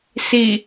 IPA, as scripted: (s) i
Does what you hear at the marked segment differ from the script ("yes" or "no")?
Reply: no